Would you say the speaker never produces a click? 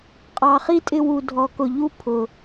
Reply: yes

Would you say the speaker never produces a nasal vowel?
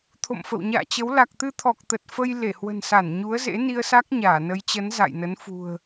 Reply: yes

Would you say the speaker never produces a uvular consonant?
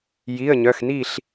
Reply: yes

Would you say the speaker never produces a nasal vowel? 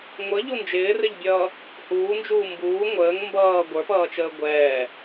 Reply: yes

